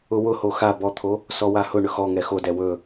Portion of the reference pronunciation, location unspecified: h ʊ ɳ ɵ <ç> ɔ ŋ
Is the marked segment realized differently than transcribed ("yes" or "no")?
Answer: yes